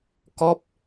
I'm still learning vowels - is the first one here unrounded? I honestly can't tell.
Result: no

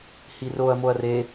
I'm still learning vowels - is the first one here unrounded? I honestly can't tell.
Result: yes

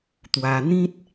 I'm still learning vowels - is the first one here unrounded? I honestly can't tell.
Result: yes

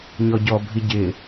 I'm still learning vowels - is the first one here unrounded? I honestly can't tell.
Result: no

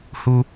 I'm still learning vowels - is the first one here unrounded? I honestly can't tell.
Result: no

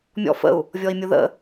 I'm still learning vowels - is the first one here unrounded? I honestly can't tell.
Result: no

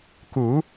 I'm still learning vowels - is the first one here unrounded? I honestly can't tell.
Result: no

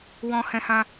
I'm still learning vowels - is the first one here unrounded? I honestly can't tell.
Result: no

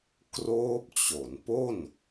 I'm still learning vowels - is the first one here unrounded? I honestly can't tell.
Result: no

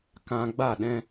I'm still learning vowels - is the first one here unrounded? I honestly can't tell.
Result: yes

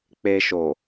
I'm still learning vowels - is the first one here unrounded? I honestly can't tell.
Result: yes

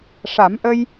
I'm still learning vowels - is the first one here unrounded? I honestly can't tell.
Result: yes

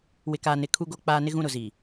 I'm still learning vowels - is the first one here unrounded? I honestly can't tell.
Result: yes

